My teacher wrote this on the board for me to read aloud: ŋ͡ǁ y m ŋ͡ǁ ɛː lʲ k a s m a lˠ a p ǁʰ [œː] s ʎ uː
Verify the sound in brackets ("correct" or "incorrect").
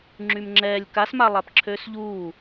incorrect